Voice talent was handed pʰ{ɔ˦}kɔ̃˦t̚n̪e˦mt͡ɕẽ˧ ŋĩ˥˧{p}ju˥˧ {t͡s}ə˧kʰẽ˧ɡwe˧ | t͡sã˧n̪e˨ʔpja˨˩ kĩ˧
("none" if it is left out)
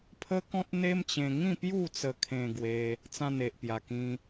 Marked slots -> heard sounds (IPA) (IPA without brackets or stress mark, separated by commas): ə˦, p, t͡s